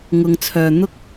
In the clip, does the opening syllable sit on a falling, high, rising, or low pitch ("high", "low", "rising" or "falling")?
low